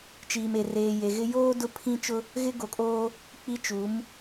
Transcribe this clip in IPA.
t͡ʃ iː˨ m e˨ r eː˨ j e˨ ɣ ɪ˦ j oː˦ d ʊ˦ pʰ ĩ˦ t͡ʃ ʊ˦ | ɣ ɪ˦ ɡ o˨ kʼ oː˦ | k͡p i˦ t͡ʃ u˨˦ m

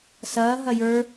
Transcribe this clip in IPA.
s ɐː ɦ ɐ j ə˞

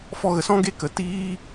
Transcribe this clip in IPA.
f ɔ˧ ɣ ə˨ s ɔ̃˦ ɡ e˦ k ə˨ t iː˦

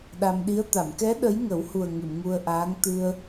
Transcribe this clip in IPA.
ɗ a˧ m ɗ i˧˥ ə̯ t̪ a˨˩˨ m k ɛ˧˥ ɗ ə˧˥ j ŋ ə˨˩˦ w h u˨˩ ə̯ ŋ ɨ˨˩˨ m ŋ u˧ ə̯ ʔ aː˧˥ ŋ t̪ ɨ˧ ə̯

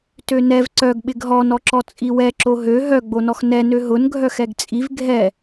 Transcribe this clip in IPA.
t ø n ɛ v ǀ œ ɡ ɓ ɪ ɡ ɦ ɔ n ɔ ǁ ɔ t͡sʼ i w ɛ ǁ o ɦ ø ɦ œ ɡ͡b o n ɔ x n ɛ n ø ɦ ʊ n ɡʱ œ x ɛ ɡ t͡sʼ i v ɡʱ ɛ

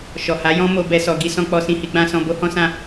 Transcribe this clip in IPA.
ʃ ɔ˨ h a˨˦ j ɔ̃˦ m o˧ b ɛ˧ s ɔ˨ ɡ i˧ s ɔ̃˧ k͡p ɔ˧ s ĩ˧ h i˧ ɡ͡b ã˧ s ɔ̃˧ b o˦ h ɔ̃˦ s ã˦

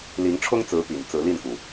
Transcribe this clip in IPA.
l i˧˥ ŋ ʈ͡ʂʰ ʊ˥ ŋ t͡s ɹ̩˧˥ p ḭ˨˩ n t͡s ɹ̩˧˥ l i˥˩ n k u˩

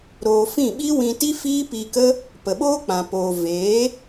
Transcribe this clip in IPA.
ɾ oː˧ f ĩ˦˨ ɓ i˦ w ĩ˧ t i˦ f iː˦ p i˧ k ə˦ | p ə˨ ɓ oː˦ k͡p ã˨ p oː˨ v eː˨˦

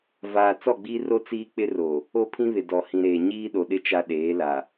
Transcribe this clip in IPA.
v aː˨ t͡s ɔ˦˨ ɡ͡b iː˦ r o˦ t͡s iː˦ k͡p ɪ˦ r o˨ | o˦ pʰ ĩ˦ β ɪ˨ d ɔ˨ h ĩ˨ ɾ eː˨ ɲ iː˦ ɗ o˨ ɗ ɪ˦ t͡ʃ a˦ ɗ eː˨˦ l a˨

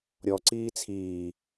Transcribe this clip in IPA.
ɾʲ ɔ ǀ iː t͡sʰ iː

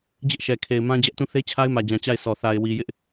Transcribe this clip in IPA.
d͡ʑ ɪ˦ ʔ ʃ ɛ˨ kʰ e˨ ɪ̯ m ã˦ d͡ʑ ɛ˦ ʔ t ũ˦˨ θ e˦ t͡ɕʰ a˦ ɪ̯ m ä˨ d͡ʑ ã˨ t͡ɕ a˦˨ ɪ̯ s ɔ˨ θ a˨ ɪ̯ w i˨ j ɪ˦ ʔ

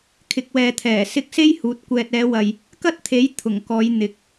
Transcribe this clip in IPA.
kʰ ɪ˨ k̚ w ɛː˨ t̪ʰ ɛː˨˩ s ɪ˧ k̚ s e˥ j h uː˨˥ t̚ kʷ ɛː˨ t̚ ɛː˨˧ w ɐ˨ j | k ɐ˥ t̚ t̪ʰ e˨˥ j t̪ʰ ʊ˨˩ ŋ k ɔː˨˧ j n̪ ɪ˨˥ k̚

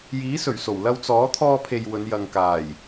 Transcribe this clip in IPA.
j iː˨˥ s ɵ˨˩ ɥ s o˨˩ w l ɐ˧ w t͡s ɔː˨˥ t̪ʰ ɔː˧ pʰ e˨ j w ɵ˨˧ n j ɐ˨ ŋ k aː˨˩ j

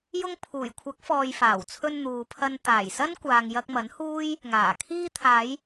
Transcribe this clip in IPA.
j ʊ˧ ŋ pʰ uː˨˩ j kʷʰ ɐ˨˥ k̚ f ɔː˨ j f aː˨˩ w t͡sʰ ɵ˧ n n̪ uː˨ pʰ ɐ˧ n t̪ aː˨˩ j s ɐ˥ n kʷ aː˨ ŋ j ɐ˧ k̚ m ɐ˨˥ n h uː˥ j | ŋ aː˨˩ kʰ iː˧ t̪ʰ aː˨˧ j

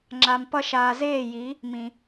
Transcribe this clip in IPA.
ŋ͡ǁ a˨ m p ʌ˧ ʃ aː˨ z eː˦˨ j i˨˦ | m ĩ˨

